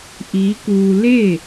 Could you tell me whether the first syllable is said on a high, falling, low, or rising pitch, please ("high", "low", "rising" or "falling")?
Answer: rising